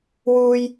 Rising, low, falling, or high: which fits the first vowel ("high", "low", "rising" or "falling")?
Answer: low